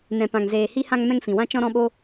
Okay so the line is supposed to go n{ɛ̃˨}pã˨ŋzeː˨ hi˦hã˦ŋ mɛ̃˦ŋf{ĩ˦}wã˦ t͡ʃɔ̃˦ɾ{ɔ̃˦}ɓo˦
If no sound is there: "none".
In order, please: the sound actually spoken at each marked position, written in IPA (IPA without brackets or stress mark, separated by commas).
ɛ̃˨, ĩ˨, ɔ̃˦